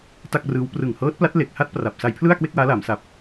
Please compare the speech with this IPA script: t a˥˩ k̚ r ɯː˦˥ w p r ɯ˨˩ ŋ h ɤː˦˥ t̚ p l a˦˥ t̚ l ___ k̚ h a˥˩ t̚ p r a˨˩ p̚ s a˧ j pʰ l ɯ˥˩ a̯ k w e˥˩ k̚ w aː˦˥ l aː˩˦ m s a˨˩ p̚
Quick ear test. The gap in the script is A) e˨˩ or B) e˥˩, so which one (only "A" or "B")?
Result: A